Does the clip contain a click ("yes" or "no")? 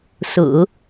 no